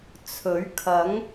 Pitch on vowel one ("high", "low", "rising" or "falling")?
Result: rising